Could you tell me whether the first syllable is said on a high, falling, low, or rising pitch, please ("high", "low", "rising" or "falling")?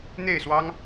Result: falling